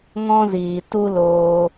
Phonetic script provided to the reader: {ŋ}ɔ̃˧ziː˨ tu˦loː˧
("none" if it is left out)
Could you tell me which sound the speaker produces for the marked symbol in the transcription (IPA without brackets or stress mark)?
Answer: ŋ